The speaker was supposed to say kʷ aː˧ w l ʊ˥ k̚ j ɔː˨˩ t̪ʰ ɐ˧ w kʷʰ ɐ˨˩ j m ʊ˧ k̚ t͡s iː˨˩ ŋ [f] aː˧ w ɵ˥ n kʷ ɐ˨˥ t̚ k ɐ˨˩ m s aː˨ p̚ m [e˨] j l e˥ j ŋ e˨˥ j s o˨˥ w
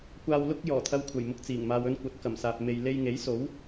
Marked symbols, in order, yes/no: no, no

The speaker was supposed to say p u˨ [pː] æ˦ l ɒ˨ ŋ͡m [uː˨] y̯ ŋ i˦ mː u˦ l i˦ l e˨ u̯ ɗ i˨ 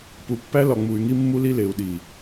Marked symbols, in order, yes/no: yes, no

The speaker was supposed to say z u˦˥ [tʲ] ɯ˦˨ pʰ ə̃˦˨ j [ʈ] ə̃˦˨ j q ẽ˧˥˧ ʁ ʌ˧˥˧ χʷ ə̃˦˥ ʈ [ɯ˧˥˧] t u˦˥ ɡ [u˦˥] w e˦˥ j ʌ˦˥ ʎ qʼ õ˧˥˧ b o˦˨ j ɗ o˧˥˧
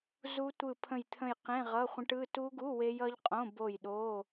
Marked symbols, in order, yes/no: no, no, yes, no

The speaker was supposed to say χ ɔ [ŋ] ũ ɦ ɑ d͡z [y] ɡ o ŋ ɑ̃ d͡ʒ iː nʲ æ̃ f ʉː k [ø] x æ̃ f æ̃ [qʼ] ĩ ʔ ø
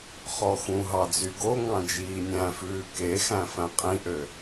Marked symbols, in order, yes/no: no, yes, no, yes

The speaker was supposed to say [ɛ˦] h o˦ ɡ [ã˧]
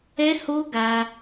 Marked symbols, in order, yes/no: yes, no

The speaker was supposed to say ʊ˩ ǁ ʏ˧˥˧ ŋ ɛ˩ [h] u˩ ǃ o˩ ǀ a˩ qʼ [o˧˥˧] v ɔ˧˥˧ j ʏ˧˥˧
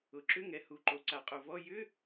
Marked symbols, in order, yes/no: yes, no

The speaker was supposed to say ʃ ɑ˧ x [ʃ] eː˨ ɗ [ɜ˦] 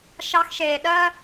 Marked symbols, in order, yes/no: yes, yes

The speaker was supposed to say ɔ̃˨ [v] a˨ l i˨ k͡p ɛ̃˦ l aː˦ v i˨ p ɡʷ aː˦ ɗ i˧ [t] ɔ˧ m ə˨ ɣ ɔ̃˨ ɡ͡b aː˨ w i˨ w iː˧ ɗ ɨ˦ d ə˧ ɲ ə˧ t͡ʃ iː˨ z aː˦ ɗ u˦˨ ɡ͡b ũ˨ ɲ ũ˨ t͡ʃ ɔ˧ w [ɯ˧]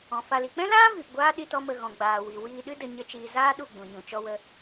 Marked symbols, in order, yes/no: no, yes, no

